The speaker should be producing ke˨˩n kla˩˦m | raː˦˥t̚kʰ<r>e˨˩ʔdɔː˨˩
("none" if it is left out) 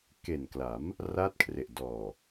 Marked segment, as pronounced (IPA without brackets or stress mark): r